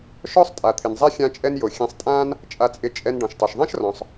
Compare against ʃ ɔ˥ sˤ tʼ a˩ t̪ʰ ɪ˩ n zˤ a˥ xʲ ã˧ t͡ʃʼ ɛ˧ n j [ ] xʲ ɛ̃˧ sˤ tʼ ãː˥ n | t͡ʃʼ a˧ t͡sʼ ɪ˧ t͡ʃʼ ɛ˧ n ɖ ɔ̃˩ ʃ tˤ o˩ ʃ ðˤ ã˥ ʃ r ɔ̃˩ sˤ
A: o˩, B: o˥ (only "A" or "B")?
A